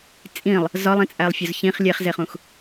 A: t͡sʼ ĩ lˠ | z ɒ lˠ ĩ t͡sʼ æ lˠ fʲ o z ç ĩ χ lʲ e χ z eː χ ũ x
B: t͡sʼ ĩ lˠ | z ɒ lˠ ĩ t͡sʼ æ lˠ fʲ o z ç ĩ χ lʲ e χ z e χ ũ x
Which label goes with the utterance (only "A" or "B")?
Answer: A